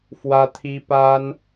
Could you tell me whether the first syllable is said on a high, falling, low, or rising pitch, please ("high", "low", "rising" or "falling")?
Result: high